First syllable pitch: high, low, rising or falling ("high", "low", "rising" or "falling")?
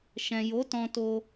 low